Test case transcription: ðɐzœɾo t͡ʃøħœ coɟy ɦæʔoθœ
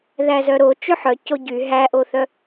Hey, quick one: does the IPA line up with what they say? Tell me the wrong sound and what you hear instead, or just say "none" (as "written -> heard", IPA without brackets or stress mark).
ɐ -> æ